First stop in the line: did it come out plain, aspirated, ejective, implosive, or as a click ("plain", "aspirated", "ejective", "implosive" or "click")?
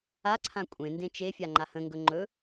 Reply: click